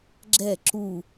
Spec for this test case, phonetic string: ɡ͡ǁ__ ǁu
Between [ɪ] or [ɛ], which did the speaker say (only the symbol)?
ɛ